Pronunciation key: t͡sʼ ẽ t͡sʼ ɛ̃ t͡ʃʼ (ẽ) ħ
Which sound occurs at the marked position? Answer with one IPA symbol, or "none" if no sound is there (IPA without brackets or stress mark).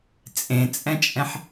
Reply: ɛ̃